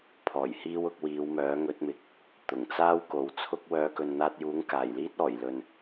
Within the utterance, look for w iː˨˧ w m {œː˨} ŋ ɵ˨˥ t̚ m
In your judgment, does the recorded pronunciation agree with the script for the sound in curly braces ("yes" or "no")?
no